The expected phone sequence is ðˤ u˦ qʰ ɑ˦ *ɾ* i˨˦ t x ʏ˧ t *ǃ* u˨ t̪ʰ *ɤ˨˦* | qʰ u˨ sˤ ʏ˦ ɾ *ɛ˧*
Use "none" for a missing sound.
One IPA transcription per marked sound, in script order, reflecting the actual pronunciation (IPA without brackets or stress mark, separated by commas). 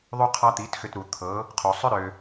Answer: t̪, ɾ, ɤ˨˦, ø˧